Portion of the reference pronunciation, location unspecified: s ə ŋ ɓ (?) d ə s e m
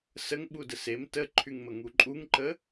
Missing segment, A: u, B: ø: A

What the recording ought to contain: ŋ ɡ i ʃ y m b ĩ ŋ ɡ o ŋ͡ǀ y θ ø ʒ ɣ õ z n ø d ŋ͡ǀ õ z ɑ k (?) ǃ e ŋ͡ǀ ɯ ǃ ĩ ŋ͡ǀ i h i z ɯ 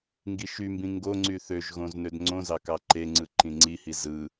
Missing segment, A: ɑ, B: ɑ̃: A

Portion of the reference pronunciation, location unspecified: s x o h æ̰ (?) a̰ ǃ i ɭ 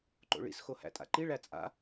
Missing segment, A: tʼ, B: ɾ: A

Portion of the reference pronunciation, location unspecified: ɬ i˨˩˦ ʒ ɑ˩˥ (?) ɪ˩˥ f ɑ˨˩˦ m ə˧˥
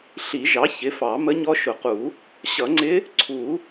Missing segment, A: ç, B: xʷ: A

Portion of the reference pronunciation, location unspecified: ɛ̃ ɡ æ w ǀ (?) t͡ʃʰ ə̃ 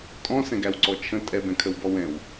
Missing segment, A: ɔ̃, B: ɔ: B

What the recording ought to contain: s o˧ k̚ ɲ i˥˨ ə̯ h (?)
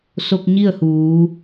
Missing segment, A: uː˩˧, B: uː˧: A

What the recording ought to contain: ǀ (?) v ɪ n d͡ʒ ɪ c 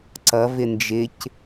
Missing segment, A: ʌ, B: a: A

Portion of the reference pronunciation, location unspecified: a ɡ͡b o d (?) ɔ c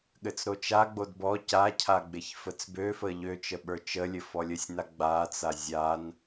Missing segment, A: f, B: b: B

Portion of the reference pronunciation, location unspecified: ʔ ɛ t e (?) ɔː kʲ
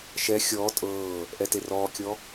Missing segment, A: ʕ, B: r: B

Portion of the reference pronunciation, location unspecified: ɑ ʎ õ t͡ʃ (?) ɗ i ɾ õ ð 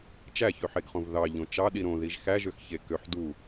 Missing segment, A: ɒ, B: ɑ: B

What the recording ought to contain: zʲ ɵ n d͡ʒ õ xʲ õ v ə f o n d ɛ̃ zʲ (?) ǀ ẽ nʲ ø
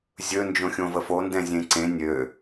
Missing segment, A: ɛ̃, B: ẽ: B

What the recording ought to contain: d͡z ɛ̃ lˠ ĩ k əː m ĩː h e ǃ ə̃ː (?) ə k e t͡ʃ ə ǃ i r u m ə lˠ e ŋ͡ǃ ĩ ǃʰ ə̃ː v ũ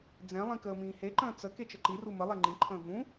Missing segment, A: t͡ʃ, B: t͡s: B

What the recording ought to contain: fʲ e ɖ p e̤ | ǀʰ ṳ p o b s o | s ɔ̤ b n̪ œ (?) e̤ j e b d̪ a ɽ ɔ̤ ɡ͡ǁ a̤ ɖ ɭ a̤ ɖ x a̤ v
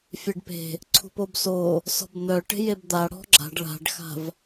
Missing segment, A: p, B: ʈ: B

